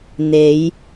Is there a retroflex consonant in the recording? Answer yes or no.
no